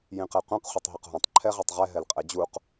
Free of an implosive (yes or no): yes